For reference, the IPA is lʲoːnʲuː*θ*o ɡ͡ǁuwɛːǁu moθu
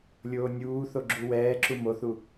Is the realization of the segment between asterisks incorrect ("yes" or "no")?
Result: no